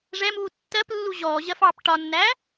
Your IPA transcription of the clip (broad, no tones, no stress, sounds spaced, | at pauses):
ʐ ɛ m uː tː ɜ p lː u ʑ ɔː ʑ ɜ f ɑː p ʈ ɒ nː æ